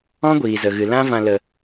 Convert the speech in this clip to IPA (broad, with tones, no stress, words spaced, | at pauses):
ɔ̃˦ɡʷiː˨ zə˨ɣɨ˨lã˦vã˧ lə˨